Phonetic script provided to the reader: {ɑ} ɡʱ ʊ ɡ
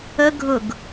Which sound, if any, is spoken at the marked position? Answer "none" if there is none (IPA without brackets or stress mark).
ə